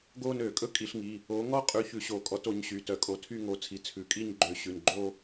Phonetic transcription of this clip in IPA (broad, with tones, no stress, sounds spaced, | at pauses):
ɡ o˥˧ n ø˧˩˧ kʼ ɵ˥˧ kʼ i˧˩˧ ɬ ŋ i˩˧˩ | o˨˦ ŋ ɔ˥˧ qʼ ʉ˨˦ ç ʉ˧˩˧ ɕ o˧˩˧ kʼ ɔ˨˦ t o˨˦ ɲ ɕ y˩˧˩ t œ˧˩˧ kʼ o˨˦ tʰ y˥˧ ŋ o˨˦ t͡sʰ i˩˧˩ t͡sʰ ʉ˩˧˩ kʼ i˥˧ ɲ ɡ͡ǃ ø˧˩˧ ɕ ʉ˩˧˩ n ɡ͡ǃ o˥˧